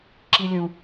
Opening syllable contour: high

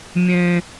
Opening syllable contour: low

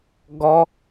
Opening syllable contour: high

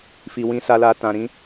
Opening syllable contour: low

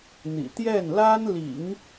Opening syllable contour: low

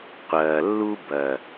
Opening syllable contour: low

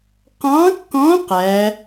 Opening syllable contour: rising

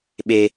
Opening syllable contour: low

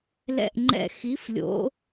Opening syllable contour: falling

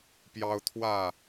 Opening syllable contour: high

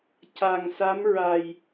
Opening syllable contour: low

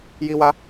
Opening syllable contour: high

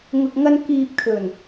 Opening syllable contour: low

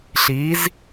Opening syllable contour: rising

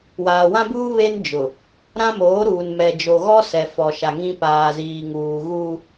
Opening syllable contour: low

